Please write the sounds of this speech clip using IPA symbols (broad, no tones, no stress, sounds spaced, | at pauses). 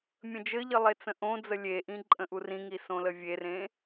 mʲ ə̃ d͡ʒ ɘ ʎ ə lˠ e t͡s ə̃ ʔ õ d͡z ə lʲ e ʔ ĩ ǃʼ ə̃ ʔ u r ĩ ŋ i s õ l ə vʲ e r ẽ